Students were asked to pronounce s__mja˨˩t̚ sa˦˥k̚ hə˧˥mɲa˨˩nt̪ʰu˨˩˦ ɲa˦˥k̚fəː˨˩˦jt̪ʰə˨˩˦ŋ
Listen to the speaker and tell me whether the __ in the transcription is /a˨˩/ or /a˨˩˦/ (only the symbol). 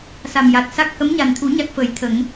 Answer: a˨˩